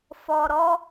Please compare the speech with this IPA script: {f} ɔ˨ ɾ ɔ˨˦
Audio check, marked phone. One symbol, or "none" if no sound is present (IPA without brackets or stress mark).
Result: f